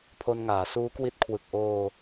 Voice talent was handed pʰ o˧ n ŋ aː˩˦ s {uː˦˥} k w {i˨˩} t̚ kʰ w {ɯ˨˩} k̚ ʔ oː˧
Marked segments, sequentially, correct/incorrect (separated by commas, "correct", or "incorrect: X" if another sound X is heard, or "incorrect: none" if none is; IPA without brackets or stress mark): correct, incorrect: i˦˥, correct